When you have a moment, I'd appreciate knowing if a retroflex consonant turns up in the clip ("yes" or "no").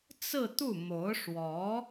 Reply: yes